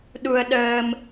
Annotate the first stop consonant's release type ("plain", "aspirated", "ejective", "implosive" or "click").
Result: implosive